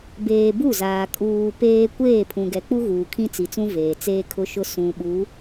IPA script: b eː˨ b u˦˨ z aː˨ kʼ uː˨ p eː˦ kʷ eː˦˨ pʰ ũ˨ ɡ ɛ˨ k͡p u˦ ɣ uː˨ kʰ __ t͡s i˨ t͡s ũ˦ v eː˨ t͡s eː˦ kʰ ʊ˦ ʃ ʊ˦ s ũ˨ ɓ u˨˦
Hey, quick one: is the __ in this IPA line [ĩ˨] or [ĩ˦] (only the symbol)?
ĩ˦